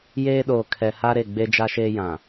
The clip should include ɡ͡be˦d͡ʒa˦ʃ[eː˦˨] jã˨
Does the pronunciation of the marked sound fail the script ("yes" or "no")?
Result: yes